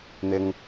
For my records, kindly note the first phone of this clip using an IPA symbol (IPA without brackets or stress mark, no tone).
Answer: n̪